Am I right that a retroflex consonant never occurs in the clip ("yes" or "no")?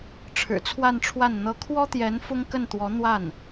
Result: no